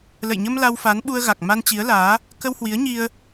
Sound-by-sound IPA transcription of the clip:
l ə̰˧˨ j ɲ ə˧ m l a˧ w f a˨˦ n ɓ u˧ ə̯ ɣ a˨˩ k̚ m a˧ n t͡ɕ i˨˦ ə̯ l aː˨˦ | k ə˧ w h w i˨˦ ə̯ ɲ i˧ ə̯

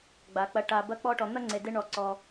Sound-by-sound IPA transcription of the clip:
ɡ͡b a˩ k͡p ɐ˨ ʈ a˨ b ɐ˦ k͡p ɔ˦ ʈ ɔ˨ n̪ ɐ˥ ŋ͡ǀ e˨ d e˦ ɳ ɔ˨ ǀ ɔ˨

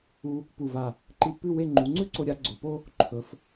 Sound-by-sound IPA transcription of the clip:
u˧ | p u˧˩ v a˧˩ | ǃ i˧˩ pː ʉ˥˧ w e˥˧ ŋ͡ǃ u˩˧ ŋ͡ǀ ʉ˥ ǀ o˧ ɾʲ a˩˧ ɡ͡ǀ o˩˧ p o˥ | ǃʰ ɵ˩˧ f

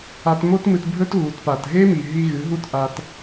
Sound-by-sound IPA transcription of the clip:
a˧ t m o˦ t m ɨ˧ t bʱ ɵ˦ t ɣ u˨ t p a˨ t ɦ e˦ m i˨ ɦ i˧ ɣ ɨ˨˦ ɦ u˦ t ʔ a˦ t

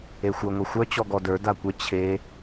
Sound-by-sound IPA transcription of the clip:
e xʷ ə˞ ŋʷ ʌ xʷ œ t͡ɕ ɔ ɡ ɔ d ə˞ d a kʷ ə t͡ɕʰ e

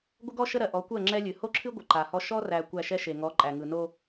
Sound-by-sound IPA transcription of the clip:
ɡʷ ə˦ ɡ ɔ˦ ʃ ə˦ ɾ ɜ˨ ʔ ɔ˨˦ kʷ ɜ˦˨ ŋ͡ǁ ɛ˦ lʲ ɨ˨ h o˦ ǁʰ ɨ˦ ɡʷ ə˨ ǃ a˨ h ɔ˦ ʃ ɔ˦ r æ˨ kʷ æ˦˨ ʃ ɛ˦ ʃ e˨ ŋ ɔ˨˦ ǃʼ æ˨ ŋ ɯ˨ n o˦

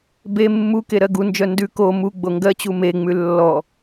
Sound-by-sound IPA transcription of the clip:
b e mː u k e ɾ ɜ ɡ u n d͡ʒ œ n d ʉ k o m u ɡ͡b o ŋ ɡ ɜ t͡ɕ u m e ŋ͡m ʉ lː ɔ

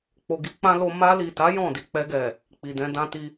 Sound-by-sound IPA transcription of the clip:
k͡p o˨ ɡ i˧ k͡p ã˧ l o˧ m a˧ l i˨ t a˨˦ j ɔ̃˦˨ d i˨ k͡p ɛ˧ ɡ ɛ˨ | k͡p i˨ d ɛ̃˧ d ã˧ t i˧

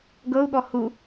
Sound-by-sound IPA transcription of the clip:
ɡ ɤ u̯ ɠ ɔ h u

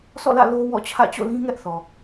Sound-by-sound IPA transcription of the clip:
s ɔ̰˦˨ l ä̰˦˨ l o˦ w ɔ̰˦˨ t͡ɕʰ ä̰˦˨ t͡ɕ o̰˦˨ l ĩ˦ ŋ ɛ˦ ʔ θ ɔ˨

